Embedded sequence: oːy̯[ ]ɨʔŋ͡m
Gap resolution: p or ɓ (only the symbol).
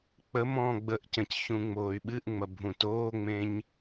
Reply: ɓ